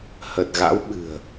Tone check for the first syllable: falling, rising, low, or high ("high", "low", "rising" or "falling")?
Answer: low